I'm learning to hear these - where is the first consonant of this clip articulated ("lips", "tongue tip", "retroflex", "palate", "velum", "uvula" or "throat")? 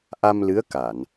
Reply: throat